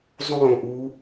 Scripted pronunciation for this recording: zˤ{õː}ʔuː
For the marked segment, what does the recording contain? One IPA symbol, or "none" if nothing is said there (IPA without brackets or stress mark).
õː